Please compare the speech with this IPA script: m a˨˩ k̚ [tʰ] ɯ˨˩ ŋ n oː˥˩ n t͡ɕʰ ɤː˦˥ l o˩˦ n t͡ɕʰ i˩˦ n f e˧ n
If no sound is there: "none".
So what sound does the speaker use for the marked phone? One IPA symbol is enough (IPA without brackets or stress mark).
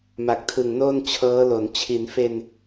tʰ